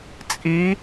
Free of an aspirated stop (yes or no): yes